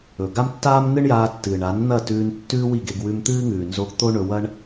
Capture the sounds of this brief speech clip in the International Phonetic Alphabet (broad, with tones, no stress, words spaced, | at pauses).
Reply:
ɵ˨ ɡa˦mtːaː˦m nɨ˦ɳjaː˧tːɨː˨ɳa˨˦n n̪ɐ˦˨tʉː˧n tːʉː˦wi˦˨ɡe˧ɡ wʉ˧mt̪ɨː˦ŋʉː˨nzo˧ɡ t̪o˦ ɳɵ˧wɐ˦ɳ